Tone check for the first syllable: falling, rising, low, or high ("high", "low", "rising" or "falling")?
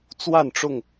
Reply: falling